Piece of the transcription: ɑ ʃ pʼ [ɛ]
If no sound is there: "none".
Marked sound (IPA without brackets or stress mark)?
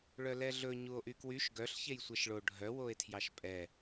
ɛ